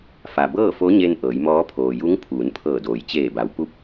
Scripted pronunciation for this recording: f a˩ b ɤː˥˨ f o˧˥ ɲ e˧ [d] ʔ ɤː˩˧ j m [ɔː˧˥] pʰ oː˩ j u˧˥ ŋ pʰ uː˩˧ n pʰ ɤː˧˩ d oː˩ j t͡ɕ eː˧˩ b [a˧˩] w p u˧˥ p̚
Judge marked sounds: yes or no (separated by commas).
no, yes, no